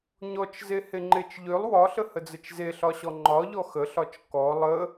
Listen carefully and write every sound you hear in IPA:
ɲ ɔ t͡ʃ z e h e ŋ͡ǃ e t͡ʃ ʎ ø lˠ w ɒ ɬ ə h ə d͡z ə t͡ʃ z e ɬ ɒ ɕ ɔ ŋ͡ǃ ɒ ʎ ɔ x ə ɬ ɒ t͡ʃ k ɔ lˠ ə

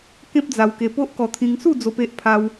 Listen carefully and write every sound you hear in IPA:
k ẽ˦ p̚ d͡z a˧ w k e˧ p o˦ ʔ k ɔ˧ t̪ʰ ĩ˧ ŋ s u˥˧ d͡z o˧ p e˦ ʔ pʰ a˦ w

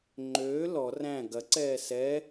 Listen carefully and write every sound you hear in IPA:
ŋ͡ǃ øː l ɔ r æ̃ ɡ ɐ ǀ ɛː s ɛ

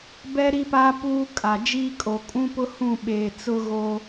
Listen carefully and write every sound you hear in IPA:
b ɛ˦ ɾ i˦ p aː˦ p uː˦ kʼ a˨ d͡ʒ iː˦ kʼ o˨ kʼ ũ˦ p ʊ˦ h ũ˦˨ ɓ eː˨ t͡s ʊ˦ ɣ o˦

